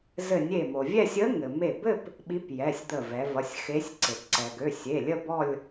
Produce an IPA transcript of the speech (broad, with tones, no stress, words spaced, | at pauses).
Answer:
zɘ˧˩nʲe˧˩mo˩ vʲɛ˥˧sʲə˧˥ŋɘ˩ me˧˩bɘ˥˧p | ɓi˧˥pjɛ˩˧˩sʲd̪ə˧˩vɛ˩˧ vʌ˩˧˩sʲxe˧˥sʲǀe˩p ǀɛ˩ɡø˩˧˩sʲe˩˧˩lʲə˥˧ bɔ˥˧lʲ